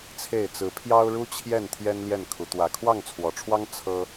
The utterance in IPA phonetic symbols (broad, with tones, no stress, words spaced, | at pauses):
t͡sʰe˥˨ɪ̯ t͡sɹ̩˨˦pʰjɑ˦ʊ̯ɻu˦ t͡ɕʰjɛ˥˨nt̪ʰjɛ˦n ljɛ˥˨nkʰu˨˦ t̪wä˨˩kʰwɑ˥˨ŋt͡sʰwɔ˨˩ʈ͡ʂʰwɑ˦ŋ t͡sʰɤ˦